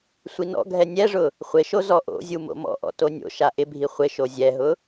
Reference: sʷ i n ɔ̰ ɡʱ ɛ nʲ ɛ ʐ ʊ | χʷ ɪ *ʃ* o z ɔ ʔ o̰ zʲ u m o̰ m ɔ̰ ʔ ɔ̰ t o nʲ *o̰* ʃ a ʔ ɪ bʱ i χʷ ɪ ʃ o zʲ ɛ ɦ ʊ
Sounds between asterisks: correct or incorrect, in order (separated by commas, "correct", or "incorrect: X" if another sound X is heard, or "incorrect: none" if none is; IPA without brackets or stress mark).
correct, correct